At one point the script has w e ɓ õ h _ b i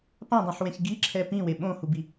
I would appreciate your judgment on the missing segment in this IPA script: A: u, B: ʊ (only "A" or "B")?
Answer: A